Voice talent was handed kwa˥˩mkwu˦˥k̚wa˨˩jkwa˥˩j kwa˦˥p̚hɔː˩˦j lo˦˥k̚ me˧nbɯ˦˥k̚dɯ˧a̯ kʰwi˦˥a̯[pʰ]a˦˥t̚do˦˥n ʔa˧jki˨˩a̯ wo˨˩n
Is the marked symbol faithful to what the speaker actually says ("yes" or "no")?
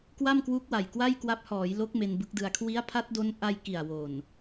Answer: yes